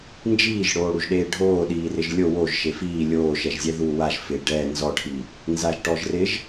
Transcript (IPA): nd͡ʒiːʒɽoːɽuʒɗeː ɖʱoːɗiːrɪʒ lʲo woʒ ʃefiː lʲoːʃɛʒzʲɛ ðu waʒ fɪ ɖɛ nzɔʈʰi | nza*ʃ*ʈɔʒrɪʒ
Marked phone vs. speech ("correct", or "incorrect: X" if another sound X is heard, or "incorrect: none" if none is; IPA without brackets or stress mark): incorrect: ʒ